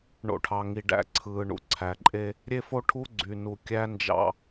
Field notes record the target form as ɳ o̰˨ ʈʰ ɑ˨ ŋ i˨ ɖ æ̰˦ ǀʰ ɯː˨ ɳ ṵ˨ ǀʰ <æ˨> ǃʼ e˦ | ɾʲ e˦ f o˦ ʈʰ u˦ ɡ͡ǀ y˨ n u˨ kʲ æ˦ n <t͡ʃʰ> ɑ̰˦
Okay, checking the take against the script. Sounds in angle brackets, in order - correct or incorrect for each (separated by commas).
correct, incorrect